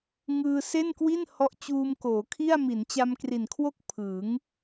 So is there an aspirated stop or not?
yes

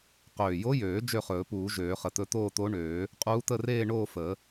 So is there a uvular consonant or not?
yes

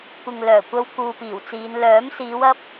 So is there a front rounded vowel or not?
yes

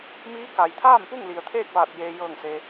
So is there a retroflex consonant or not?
no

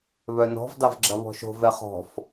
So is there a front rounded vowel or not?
yes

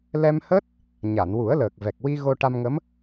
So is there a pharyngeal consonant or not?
no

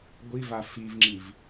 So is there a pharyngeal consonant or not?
no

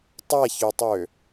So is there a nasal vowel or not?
no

